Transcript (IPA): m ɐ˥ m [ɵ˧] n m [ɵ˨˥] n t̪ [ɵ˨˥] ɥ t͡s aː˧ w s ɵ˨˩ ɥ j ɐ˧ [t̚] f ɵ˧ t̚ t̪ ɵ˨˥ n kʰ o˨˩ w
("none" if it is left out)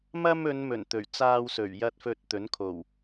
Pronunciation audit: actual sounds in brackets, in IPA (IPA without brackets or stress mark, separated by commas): ɵ˨˧, ɵ˨˩, ɵ˨˩, t̚